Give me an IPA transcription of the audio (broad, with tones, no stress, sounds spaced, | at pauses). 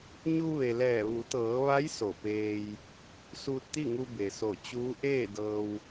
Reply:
ɲ u˧ ʋ e˩ l ɛː˧˩ ʋ u˩˧ t̪ ɤː˩˧ ʋ a˧˥ j s o˧˩ p eː˧ j | s uː˧ t̚ t̪ i˥˨ ŋ u˧ b e˩ s o˧˩ t͡ɕ uː˧˥ ʔ eː˥˨ d ɤː˧ w